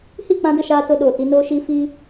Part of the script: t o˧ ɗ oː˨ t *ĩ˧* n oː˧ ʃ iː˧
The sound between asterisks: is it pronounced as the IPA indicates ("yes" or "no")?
no